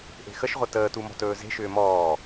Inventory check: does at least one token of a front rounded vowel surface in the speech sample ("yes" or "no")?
yes